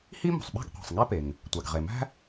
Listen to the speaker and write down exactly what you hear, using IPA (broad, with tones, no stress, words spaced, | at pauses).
hi˥mo̤˩sˤɓæ̤˥ɡ qʷe̤˩sˤŋæ˥pe˩ŋ | tʷæ˩ɡʁe˩mæ̤˥